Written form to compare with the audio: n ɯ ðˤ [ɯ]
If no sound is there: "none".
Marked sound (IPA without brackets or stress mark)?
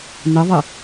ɯ